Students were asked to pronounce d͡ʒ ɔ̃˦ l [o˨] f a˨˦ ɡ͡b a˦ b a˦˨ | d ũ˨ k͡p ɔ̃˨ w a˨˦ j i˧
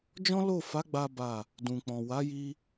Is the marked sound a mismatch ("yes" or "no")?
yes